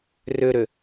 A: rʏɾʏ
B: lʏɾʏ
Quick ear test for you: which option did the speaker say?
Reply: A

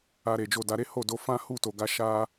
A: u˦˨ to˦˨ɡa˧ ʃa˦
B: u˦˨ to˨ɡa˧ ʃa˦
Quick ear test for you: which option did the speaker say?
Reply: B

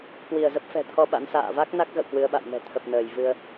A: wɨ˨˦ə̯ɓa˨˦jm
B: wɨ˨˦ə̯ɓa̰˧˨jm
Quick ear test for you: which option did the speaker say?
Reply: B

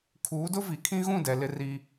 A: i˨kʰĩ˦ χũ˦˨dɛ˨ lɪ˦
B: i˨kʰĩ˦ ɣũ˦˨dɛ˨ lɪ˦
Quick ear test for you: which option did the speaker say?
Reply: B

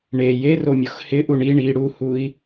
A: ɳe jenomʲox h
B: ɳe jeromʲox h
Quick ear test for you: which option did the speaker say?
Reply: B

